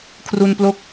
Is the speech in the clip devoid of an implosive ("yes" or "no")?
yes